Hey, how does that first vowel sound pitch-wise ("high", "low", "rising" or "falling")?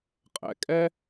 low